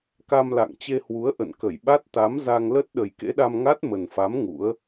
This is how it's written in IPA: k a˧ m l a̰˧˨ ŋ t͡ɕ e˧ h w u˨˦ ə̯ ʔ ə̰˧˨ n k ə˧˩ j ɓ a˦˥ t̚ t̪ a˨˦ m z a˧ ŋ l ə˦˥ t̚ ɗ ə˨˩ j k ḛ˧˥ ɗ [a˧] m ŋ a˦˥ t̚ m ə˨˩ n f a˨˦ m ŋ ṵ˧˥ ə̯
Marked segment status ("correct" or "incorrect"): correct